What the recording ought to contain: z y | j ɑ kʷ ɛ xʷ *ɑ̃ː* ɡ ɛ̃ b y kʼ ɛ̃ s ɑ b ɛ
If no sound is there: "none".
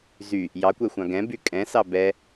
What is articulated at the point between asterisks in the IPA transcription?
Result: ɑ̃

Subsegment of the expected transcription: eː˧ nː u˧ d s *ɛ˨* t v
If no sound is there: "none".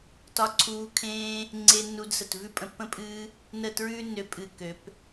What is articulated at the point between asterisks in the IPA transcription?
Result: ə˨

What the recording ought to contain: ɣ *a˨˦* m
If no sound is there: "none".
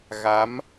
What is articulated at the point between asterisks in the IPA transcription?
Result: a˨˦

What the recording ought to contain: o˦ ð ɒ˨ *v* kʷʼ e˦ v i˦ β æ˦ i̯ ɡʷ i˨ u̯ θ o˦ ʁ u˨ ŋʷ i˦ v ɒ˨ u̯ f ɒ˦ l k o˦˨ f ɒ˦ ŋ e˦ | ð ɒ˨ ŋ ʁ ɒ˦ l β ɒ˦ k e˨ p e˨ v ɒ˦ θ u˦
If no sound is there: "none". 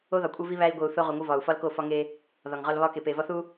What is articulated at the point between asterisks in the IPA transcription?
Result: none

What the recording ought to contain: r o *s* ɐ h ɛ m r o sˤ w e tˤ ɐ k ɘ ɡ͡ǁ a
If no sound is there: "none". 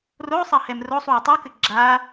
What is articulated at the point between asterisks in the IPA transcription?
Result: sˤ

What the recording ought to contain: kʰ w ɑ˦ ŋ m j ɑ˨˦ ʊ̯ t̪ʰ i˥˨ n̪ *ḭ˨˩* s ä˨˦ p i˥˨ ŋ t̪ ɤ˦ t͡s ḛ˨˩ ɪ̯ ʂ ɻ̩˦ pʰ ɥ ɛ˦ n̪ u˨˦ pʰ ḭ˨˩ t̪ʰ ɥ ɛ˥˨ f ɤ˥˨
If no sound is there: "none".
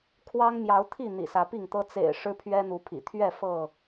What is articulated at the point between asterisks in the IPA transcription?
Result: ḭ˨˩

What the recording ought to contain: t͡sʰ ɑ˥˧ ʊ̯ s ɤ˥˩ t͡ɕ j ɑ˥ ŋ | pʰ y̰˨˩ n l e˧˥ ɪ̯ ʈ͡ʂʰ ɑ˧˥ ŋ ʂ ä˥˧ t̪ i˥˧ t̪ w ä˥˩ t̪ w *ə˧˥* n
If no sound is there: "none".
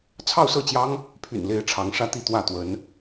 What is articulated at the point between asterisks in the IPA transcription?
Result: ə˧˥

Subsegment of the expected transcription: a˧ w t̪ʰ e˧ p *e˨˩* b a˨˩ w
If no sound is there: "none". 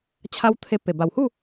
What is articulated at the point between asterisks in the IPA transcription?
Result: e˨˩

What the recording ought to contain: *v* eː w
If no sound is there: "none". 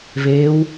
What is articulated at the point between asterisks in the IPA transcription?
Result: v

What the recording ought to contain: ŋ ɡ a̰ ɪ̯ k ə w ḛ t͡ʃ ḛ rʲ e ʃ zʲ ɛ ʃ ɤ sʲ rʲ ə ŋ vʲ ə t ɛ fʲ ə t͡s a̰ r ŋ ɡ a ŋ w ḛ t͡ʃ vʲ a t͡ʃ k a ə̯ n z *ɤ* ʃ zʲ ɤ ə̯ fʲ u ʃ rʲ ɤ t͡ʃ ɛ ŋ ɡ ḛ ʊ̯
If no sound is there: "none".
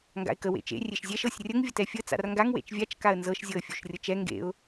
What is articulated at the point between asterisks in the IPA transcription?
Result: ɤ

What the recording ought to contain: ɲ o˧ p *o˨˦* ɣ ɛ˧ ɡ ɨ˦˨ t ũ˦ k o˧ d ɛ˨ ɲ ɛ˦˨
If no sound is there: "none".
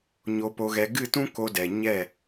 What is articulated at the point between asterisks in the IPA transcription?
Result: o˧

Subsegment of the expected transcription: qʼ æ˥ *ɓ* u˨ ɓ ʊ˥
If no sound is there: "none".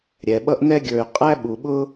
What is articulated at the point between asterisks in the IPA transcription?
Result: ɓ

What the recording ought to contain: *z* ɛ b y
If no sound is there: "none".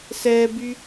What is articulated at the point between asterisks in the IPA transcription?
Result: s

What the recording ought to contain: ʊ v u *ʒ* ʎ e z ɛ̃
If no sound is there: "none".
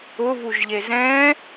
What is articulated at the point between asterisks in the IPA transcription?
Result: ʒ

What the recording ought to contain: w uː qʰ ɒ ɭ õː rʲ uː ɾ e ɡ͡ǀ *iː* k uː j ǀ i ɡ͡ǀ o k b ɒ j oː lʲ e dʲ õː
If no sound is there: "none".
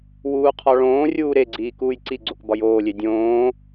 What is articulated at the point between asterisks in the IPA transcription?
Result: iː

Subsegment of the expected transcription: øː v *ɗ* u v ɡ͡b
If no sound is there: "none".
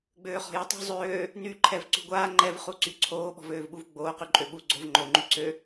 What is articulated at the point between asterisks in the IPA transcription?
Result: ɓ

